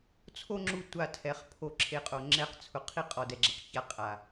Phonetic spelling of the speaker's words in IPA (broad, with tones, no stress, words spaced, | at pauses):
t͡sʰo˦ŋ͡ǁu˧ tʷa˧tʰɛ˨˦χ pʰo˧ǁʰe˧qʼo˨ ŋ͡ǁɛ˧qt͡sʰʊ˨ qʰi˦ qʼɔ˨dɛ˨ɡ͡ǁɛ˨q ça˧ qʼa˨